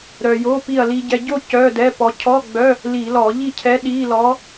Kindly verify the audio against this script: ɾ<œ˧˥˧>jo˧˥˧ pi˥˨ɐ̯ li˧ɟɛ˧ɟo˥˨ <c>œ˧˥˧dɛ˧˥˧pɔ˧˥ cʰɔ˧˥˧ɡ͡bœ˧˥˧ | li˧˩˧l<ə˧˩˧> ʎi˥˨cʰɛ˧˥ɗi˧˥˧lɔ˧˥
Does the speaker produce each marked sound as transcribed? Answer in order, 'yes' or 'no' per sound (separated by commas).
no, yes, no